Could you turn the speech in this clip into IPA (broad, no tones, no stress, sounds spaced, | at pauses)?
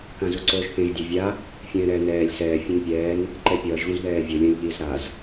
k ã z u ǀ oː ʒ θ ẽ ʒ dʲ ɛ vʲ a | fʲ ɛ̃ː ɾ ɛː n ɛː lʲ s ɛː fʲ õ n pʲ ɛː n | ǃ ɛ pʲ ʌː ʒ ɣ ũ z ð ɛː vʲ o lʲ ã lʲ ʎ iː z ɾ a z